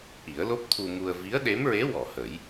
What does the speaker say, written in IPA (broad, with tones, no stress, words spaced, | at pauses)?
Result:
ʔi˨˩˦ə̯lo˦˥p̚t̪ʰu˧mu˧ə̯ vi˧˥ə̯ɗe˧˥mɹe˧˥ wɔ˨˩˨hə˨˩˦j